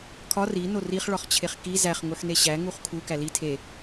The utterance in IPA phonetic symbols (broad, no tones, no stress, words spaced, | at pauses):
kʰɒ ri noriχ ɭɒχt͡ɕʰeχki zæχ ŋuħneɕæ ŋuχkʰu kæli tʰe